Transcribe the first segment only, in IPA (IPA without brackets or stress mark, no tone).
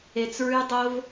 e